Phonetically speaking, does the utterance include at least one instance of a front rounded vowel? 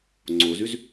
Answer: yes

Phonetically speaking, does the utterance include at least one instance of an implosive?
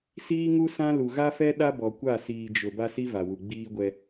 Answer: yes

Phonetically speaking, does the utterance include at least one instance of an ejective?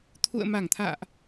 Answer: no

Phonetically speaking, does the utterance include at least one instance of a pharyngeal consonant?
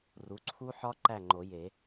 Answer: yes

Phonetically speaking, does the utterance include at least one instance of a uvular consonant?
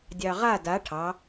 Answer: yes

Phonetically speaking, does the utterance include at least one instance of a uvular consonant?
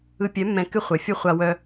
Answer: yes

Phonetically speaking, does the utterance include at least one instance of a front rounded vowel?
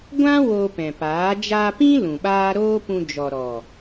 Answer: no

